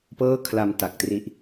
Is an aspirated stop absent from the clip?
no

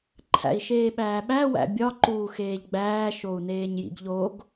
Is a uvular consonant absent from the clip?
yes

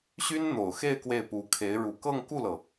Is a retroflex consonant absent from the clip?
no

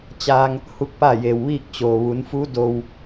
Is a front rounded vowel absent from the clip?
yes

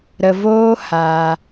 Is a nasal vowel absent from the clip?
yes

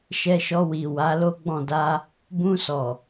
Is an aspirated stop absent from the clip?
yes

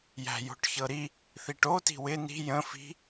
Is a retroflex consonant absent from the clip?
no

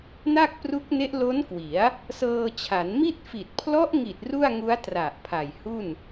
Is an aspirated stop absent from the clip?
no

